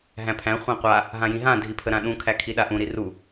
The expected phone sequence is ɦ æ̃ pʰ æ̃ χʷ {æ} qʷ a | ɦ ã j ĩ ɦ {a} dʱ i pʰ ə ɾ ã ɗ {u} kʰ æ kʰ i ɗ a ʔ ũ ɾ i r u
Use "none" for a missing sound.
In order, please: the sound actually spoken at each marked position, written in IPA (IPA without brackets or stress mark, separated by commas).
æ̃, ã, ũ